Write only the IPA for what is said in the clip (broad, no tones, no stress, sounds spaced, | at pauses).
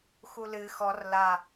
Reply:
x u l ɨ x ɔ r l a